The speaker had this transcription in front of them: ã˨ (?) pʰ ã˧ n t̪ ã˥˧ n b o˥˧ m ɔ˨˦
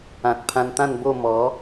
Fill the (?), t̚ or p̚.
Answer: t̚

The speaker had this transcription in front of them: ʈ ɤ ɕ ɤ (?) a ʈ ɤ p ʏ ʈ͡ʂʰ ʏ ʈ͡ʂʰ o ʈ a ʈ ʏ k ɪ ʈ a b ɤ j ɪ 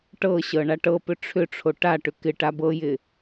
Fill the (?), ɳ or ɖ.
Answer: ɳ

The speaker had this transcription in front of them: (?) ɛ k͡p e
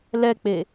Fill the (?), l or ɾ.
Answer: l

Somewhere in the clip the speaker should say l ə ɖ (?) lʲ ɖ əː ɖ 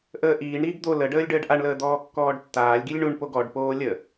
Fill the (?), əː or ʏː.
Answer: əː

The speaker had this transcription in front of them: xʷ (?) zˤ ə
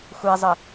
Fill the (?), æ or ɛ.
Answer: ɛ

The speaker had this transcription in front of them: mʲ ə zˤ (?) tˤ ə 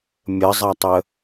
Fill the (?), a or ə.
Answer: a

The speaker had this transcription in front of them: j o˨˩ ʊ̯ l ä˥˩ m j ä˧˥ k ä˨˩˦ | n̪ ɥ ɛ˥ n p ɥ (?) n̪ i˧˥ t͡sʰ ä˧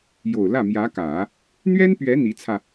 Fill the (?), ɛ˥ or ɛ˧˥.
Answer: ɛ˧˥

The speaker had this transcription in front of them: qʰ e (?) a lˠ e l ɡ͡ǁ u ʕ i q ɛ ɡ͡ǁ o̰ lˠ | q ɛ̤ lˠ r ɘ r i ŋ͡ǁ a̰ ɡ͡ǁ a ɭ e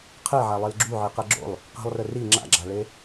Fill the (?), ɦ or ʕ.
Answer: ʕ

